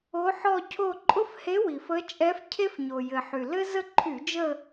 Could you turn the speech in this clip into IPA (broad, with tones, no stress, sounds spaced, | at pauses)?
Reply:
o˧˥ ħ ɔ˥˧ cʰ o˥˧ ǃʼ ʊ˥ f h e˧˥ w i˩ f ə˧˥ t͡ʃʼ ɛ˧˥ f cʰ e˥ f ɲ o˩ j ɘ˩ ħ y˩ l ɘ˥ z ə˥˧ ǃʰ y˧˩˧ d͡ʒ ə˥˧